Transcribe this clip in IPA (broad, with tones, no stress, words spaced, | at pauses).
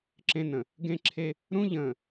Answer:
ǁẽ˦nə̃˨ | ɡẽ˦ǁʰe˦ | ɾũ˦ʎə̃ː˨